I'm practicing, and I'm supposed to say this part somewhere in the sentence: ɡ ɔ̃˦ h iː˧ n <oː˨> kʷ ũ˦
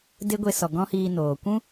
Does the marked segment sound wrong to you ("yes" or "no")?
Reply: no